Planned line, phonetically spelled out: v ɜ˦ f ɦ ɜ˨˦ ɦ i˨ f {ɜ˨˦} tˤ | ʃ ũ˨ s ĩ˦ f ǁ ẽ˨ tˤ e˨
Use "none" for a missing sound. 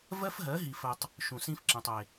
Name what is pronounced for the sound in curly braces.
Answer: ɜ˨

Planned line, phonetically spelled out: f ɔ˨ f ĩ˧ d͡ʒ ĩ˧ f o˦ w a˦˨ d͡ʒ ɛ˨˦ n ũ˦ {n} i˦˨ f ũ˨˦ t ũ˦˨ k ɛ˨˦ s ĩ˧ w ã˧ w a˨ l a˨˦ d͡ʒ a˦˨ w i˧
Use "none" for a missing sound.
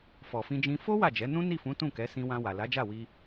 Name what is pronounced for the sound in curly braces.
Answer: n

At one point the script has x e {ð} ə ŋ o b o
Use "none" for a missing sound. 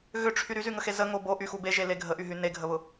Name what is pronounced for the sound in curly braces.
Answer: z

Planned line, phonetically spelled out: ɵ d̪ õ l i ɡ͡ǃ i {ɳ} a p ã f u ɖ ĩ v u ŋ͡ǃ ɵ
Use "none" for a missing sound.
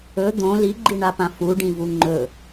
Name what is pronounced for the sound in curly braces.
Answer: ɳ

